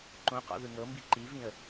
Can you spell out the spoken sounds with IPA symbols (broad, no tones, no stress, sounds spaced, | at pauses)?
ǃ õ q ɔ̰ ð ɯ ŋ ɤ m b i ǃ i v ĩ ə̯